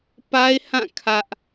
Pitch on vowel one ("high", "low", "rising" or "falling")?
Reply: high